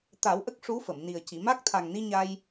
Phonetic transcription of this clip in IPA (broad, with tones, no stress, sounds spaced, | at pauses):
t̪ a˨˩˦ w ʔ ə˦˥ k̚ ʂ u˧˥ f ə˨˩˨ m n i˨˩ ə̯ c i˨˩˨ m a˦˥ k̚ t̪ʰ a˨˩ ŋ n i˧ ɲ a˧ j